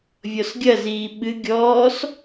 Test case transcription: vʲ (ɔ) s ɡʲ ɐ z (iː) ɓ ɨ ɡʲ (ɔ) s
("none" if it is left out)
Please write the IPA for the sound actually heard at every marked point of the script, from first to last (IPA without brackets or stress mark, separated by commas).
ɔ, iː, ɔː